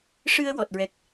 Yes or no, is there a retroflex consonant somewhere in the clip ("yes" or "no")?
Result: yes